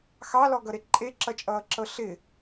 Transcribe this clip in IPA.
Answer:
x ɑ l ɔ ɡ ʌ ɾ e ǃʼ e ǁ ʌ t͡ʃʼ ʌː ǁ ɤ ɬ ɪ

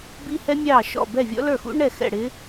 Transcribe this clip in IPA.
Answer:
b i˦˥ h ɛ˦˥ mʲ ɑː˥˩ ʃ ɔ̰˥˩ b ɛ˥˩ vʲ ɔ̰˦˥ l ə˞˥˩ x ṵ˦˥ ɳ ɛ˥˩ x ɛ̰˥˩ ɽ ɪ˦˥

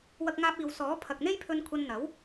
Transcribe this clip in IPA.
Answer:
w ɐ˥ k̚ ŋ aː˥ p̚ iː˧ w s ɔː˨˥ pʰ ɐ˨ k̚ n̪ e˥ j pʰ ɵ˧ n kʷʰ ɐ˧ n n̪ ɐ˨˥ w

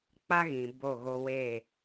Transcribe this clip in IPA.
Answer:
k͡p a˦ ɣ ĩ˨ b o˦˨ ɣ o˦ w eː˦˨

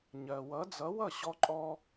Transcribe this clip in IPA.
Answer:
ɲ ɜ˩ w ʌ˩˥ d͡z ʌ˩˥ w ʌ˥˩ ɕ ɔ˧ ǃʼ ɔ˧

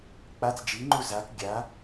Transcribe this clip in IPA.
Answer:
k͡p a t͡s d͡ʒ i ŋ͡ǃ u z a k ɡʲ a

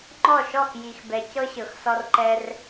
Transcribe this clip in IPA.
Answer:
ŋ͡ǃ ɔ˥˩ ʃ ɔ˥˩ x j i˨ x b ɛ˨ c ɤ˦ ɕ ɤ˨ x s ɔ˦ r ǃ ɛ˦ r

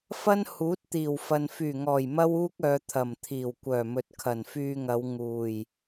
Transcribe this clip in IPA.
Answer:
f ɐ˥ n h uː˨˥ t̚ t̪ iː˨˩ w f ɐ˨ n f yː˨˩ ŋ ɔː˨˩ j m ɐ˥ w uː˥ k̚ œː˨ t̪ʰ ɐ˨˩ m t̪ʰ iː˨˩ w kʷ œː˨˩ m ɵ˨ t̚ kʰ ɐ˨˩ n f yː˧ ŋ ɐ˨˧ w ŋ uː˨˩ j

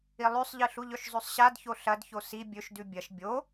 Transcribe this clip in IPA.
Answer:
i lˠ ʉ sˤ ʎ ɨ ɬ u ʎ ɵ ʃ zˤ ʉ sˤ ɕ a d ç o ɬ ɐ d ç o s i bʲ ɵ ʃ d ʉ bʲ ɐ ʃ bʲ o

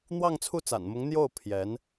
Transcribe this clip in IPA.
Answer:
n̪ w ɑ˥˧ ŋ t͡sʰ u˥˩ t͡s a̰˨˩ n m ʊ˧˥ ŋ n̪ j o˥˩ ʊ̯ pʰ j ɛ˧˥ n

